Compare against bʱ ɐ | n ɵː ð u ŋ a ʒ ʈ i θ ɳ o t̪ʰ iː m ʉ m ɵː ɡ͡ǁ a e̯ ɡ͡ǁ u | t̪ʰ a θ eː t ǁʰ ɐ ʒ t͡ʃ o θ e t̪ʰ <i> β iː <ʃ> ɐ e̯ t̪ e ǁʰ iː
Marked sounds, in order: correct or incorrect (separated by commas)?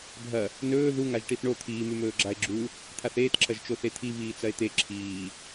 correct, incorrect